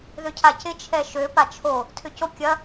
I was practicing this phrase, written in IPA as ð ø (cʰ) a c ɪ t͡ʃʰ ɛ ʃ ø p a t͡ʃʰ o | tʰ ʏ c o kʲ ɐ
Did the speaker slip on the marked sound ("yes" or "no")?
no